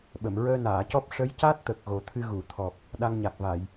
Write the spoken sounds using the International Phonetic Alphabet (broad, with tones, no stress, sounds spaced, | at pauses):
ɓ ə˨˩˨ m ɹ əː˧ n aː˨˩˨ c ɔ˦˥ p̚ ʂ ə˧˥ j c a˦˥ t̚ t̪ ə˨˩ k̚ ɣ o˨˩ t̪ʰ ɨ˧ ɣ u˨˩˨ t̪ʰ ɔ˨˩ p̚ | ɗ a˧ ŋ ɲ a˨˩ k̚ v a˨˩˨ j